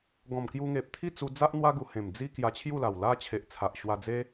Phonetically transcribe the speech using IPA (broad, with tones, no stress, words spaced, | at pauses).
ɡɔ̃˨˩mkju˧ŋe˨p̚ t̪ʰi˥˧t͡su˧d͡za˦ʔ n̪wa˦ɡu˨˩ hẽ˨˩md͡zi˦ kja˧t͡ɕʰju˥˧la˨˩w la˦t͡ɕʰe˨ʔ t͡sʰa˨ʔ ɕwa˧d͡ze˦